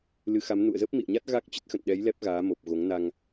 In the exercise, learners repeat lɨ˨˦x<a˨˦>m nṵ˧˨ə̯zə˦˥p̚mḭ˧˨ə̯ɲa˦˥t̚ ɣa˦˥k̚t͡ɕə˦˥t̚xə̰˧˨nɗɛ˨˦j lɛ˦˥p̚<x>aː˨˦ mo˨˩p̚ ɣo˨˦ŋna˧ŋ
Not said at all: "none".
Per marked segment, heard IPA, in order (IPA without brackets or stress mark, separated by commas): a˨˦, ɣ